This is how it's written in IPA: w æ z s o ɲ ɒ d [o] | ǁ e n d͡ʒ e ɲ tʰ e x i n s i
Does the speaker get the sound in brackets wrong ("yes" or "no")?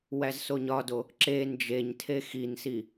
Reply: no